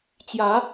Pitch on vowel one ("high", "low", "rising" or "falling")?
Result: rising